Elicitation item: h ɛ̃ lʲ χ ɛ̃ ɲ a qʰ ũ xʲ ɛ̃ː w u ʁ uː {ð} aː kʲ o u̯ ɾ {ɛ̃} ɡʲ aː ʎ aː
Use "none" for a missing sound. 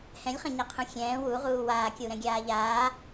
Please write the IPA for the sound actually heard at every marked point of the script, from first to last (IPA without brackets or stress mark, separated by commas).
w, ɛ̃